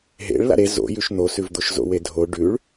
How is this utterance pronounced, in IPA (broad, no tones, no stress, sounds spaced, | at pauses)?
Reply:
ɦ ḛ ɭ l a̰ ɾ e z o̰ j ʉ ʃ n̪ o s ʉ v d̪ o ʃ z o̰ w e dʱ o ɖ ʉ ɭ